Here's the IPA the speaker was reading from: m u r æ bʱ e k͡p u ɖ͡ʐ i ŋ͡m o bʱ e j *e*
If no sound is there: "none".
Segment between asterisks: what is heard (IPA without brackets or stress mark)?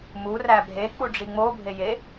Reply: e